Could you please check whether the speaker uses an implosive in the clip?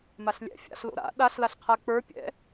yes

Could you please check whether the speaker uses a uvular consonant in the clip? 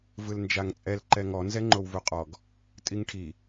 yes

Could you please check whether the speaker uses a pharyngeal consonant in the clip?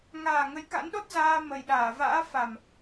no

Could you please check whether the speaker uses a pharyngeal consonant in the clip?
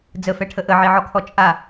yes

